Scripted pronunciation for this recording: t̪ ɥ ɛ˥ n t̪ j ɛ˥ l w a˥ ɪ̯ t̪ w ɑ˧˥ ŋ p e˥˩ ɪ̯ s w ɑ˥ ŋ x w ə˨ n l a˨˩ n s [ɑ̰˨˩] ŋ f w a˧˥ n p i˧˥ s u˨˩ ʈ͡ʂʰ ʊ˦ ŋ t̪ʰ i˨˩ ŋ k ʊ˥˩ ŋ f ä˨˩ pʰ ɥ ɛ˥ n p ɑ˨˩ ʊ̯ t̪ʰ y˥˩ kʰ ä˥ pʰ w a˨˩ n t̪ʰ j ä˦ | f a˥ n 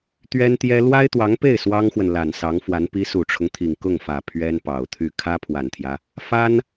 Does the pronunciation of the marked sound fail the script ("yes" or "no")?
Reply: yes